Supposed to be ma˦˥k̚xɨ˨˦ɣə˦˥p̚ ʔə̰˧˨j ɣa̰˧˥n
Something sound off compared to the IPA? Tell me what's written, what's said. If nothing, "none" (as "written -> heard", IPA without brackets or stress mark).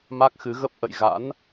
none